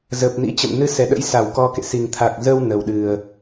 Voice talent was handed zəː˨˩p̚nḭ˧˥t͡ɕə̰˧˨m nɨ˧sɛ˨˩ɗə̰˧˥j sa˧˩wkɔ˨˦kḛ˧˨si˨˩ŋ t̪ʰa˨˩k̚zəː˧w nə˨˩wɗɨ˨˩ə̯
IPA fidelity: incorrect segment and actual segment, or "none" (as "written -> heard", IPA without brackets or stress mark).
none